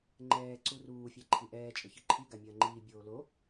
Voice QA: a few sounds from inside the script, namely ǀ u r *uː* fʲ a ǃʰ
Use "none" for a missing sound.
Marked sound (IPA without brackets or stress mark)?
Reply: uː